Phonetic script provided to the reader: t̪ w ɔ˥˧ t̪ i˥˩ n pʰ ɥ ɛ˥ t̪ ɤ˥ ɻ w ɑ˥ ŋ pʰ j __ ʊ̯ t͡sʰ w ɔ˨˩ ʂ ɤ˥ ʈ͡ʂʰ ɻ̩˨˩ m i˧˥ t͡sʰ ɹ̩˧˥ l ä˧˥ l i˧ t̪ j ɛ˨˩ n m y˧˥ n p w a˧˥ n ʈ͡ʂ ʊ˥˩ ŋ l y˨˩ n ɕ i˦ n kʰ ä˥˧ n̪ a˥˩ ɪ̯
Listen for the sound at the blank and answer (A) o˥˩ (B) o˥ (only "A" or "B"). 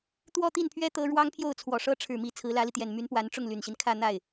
A